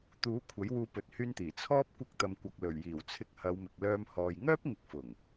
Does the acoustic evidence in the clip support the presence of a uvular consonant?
no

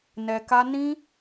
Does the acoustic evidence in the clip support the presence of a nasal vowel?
yes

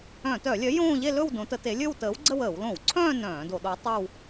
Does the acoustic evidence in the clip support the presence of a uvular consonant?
no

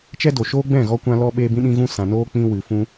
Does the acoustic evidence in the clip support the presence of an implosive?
yes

